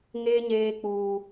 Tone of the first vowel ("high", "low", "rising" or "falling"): high